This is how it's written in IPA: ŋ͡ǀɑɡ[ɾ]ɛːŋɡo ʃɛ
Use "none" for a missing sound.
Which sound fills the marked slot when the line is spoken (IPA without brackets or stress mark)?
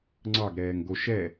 ɾ